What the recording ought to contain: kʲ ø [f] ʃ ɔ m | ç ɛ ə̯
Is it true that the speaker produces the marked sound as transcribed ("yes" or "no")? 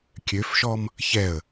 yes